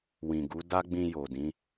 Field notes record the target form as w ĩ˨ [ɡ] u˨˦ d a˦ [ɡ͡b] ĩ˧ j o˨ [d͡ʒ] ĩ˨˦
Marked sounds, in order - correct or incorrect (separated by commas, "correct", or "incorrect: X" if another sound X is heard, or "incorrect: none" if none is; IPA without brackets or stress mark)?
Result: correct, correct, incorrect: d